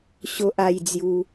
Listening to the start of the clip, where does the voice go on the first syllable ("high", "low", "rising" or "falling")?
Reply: high